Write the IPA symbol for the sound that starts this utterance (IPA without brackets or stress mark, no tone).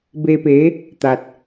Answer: b